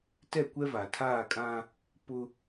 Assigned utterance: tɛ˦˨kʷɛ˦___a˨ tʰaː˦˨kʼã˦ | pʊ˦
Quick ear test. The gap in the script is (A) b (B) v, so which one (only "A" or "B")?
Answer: B